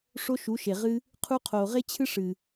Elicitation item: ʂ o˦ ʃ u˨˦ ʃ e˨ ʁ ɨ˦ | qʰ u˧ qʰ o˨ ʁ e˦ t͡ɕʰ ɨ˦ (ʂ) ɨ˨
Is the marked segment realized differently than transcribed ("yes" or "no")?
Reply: no